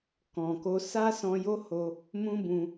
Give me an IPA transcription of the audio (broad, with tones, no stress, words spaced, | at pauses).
kɔ̃˨ko˧ sa˦sɔ̃˧jo˦ ho˦ | mũ˦bũ˧